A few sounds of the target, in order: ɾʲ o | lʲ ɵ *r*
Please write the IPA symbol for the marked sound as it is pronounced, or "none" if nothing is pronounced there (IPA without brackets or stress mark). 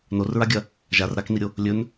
n